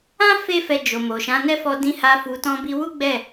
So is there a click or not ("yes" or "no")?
no